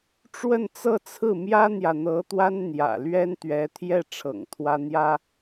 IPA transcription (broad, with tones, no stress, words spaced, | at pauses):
ʈ͡ʂwə˥˧nt͡sɤ˥˧t͡sʰɹ̩˥˩ mjä˥n̪jä˨ n̪ɤ˧˥t̪wa˥n n̪jä̰˨˩ lɥɛ˥n t̪ɥɛ˧˥t̪ʰjɛ˥˩ʈ͡ʂʰɤ̰˨˩ŋ t̪ʰwä˥n̪jä˥